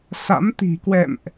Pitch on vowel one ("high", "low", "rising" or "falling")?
rising